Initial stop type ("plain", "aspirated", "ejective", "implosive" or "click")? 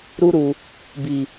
plain